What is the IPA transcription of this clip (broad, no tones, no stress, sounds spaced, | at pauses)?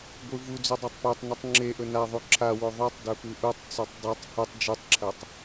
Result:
ɡʷ ɨ v u d͡z ʉ dˤ ɵ tˤ p ʉ tˤ n u tˤ ŋ͡ǁ e ʔ ɵ n a ðˤ u ǁʰ a w o ðˤ o tˤ d ɵ p ʉ ʔ u tˤ t͡s u tˤ dˤ u tˤ h u tˤ d͡ʒ ʉ tˤ ǁʰ ɐ tˤ